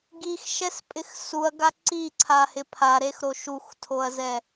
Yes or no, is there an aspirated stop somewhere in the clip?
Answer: yes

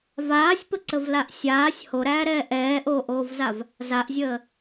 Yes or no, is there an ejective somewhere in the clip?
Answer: no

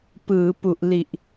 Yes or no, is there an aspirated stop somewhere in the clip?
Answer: no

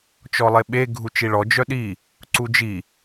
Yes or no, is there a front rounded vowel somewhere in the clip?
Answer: yes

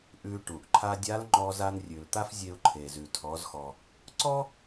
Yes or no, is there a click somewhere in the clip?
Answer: yes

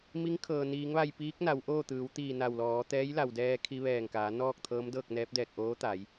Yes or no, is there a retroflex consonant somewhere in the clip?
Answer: no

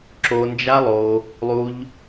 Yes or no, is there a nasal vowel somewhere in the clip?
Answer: no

